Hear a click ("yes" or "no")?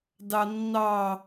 no